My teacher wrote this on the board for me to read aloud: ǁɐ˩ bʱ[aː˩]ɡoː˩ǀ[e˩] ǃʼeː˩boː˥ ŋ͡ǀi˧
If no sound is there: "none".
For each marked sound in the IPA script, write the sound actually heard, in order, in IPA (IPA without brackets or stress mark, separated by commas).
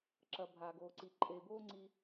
aː˩, i˩